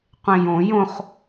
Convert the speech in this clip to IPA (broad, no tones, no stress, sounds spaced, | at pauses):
qʷ ẽ j õ j õ χ